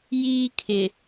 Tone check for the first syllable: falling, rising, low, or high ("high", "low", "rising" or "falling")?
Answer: high